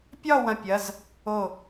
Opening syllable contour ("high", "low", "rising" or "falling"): falling